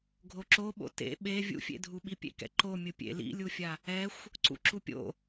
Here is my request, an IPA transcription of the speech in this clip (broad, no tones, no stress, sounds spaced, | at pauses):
ɡʱ o ǁ o ɓ o̰ t ḛ ɓ e vʲ ṵ fʲ ḛ dʱ u ɓ i pʲ ḛ k ɛ̰ ǃ o mʲ ɯ pʲ ḛ l ḭ lʲ u fʲ a | ɛ xʷ | ǀ ṵ ǁ u pʲ o̰